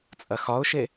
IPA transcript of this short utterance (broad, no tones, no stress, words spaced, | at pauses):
t͡sʼɐxɒʊ̯ʃe